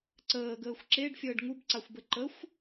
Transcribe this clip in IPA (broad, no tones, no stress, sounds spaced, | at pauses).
ǀ əː ɡ əː xʷ ǁ e ɖ fʲ əː ɖ ŋ u b ǀ a xʷ b ə ǃ ə xʷ